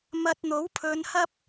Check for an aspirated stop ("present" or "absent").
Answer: present